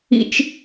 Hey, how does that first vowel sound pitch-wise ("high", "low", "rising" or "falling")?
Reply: high